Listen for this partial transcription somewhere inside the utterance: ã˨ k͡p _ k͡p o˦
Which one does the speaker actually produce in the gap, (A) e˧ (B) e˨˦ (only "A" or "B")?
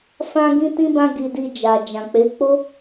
B